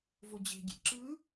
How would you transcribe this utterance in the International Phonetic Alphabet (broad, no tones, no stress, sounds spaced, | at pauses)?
v o d͡ʑ e̤ ɡʲ ḛ ǁ ɯ